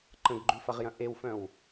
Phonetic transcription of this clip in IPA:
ǃ ə̃ ɡ ɡ͡ǃ ʉ f ɐ ʁ j ɐ̃ ʔ e w f œ̃ w

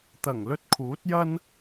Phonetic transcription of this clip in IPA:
t̪ ɐ˨˩ ŋ l ɵ˧ t̚ kʰ uː˨˥ t̚ j ɐ˥ n

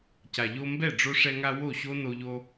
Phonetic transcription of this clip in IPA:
c a˨ ʎ o˧ m b ɛ˦˨ ɖ͡ʐ o˧ ʂ ɛ˧ ŋ a˧ w o˦˨ ɕ o˦ n o˧ ʎ o˧

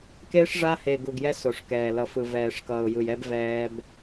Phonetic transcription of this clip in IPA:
k e˦ ʂ ʐ a˦ h e˨ ɡ u˨ ɡ j ɛ˦ s o˨ ʂ k ɛː˨ l ʌ˨ f ɯ˨ v ɛː˨ ʂ k ʌː˨ ʊ̯ j ɯ˨ j ɛ˦ b v ɛː˦ b

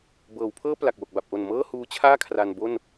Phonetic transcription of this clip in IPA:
b ɤː˩˦ w pʰ ɤː˥˩ p l a˨˩ k̚ w o˨˩ k̚ b a˨˩ p̚ ʔ o˨˩ n m ɤː˥˩ h uː˦˥ t͡ɕʰ aː˥˩ kʰ r a˧ n b o˥˩ n

